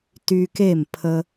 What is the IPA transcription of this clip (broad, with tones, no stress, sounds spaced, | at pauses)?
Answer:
t y˧ k e˥˩ m pʰ ə˥